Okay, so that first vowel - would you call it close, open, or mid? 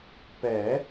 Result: mid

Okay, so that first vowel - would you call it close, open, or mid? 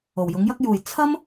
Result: mid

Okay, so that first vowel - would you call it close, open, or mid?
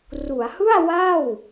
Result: close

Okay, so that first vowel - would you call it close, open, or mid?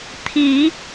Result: close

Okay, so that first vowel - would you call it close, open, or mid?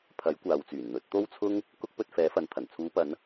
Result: open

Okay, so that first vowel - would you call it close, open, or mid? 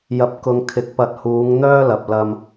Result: open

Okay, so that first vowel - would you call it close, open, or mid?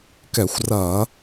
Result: mid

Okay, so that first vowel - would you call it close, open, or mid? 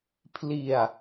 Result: close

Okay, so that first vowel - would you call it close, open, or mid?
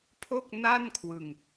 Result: mid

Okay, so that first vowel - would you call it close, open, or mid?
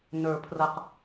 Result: mid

